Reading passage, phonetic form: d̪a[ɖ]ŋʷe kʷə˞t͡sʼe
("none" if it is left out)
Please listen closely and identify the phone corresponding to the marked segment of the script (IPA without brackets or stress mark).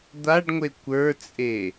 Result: ɖ